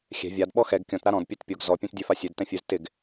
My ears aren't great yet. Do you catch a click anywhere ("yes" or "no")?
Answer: no